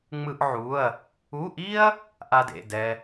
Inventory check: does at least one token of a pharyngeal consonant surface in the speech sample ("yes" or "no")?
yes